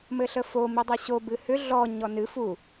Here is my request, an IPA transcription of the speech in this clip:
mɘɬəfo midˤəɕo bɨhʏ ɮɔ ɲɔnɨ fu

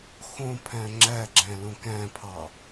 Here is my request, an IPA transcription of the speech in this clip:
xõpʰæ̃ ŋ͡ǁæɡ͡ǁæ̃ lõkæ̃pʰɑ

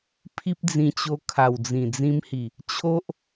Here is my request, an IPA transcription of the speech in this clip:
pʰi˦p̚d͡zĩ˧t͡ɕo˧ kʰa˨˩wd͡zĩ˨˩d͡zĩ˧mhi˨˩ | t͡ɕʰo˦ʔ

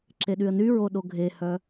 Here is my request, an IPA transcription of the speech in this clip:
ǁeɗyə̯nyɹo ɗoɡʱehœ

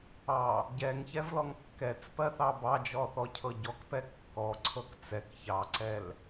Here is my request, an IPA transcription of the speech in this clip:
ɑ | ɟɛŋçɛvlɔŋ kːɛt͡spɜθɑ bɑd͡ʒɔθɔcʰɤ ɟɔkpɛ kːɔǀʰɤk t͡sɛk çɑǀɛl

